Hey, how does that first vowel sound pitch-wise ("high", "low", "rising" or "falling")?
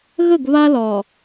falling